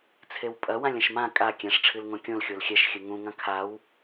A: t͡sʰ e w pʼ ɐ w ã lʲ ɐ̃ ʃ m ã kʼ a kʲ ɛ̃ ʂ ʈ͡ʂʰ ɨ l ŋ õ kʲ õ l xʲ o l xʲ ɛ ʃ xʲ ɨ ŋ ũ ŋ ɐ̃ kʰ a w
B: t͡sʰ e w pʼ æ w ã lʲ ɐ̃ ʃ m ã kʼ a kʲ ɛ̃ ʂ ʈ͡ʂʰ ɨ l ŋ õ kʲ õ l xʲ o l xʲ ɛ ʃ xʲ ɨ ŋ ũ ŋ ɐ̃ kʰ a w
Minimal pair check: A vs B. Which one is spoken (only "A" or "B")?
A